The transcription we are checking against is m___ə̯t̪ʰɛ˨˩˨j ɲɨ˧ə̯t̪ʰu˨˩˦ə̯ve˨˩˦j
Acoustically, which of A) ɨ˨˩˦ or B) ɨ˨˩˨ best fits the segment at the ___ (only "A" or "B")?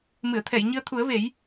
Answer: B